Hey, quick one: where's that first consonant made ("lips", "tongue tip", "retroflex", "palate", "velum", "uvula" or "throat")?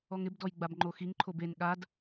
velum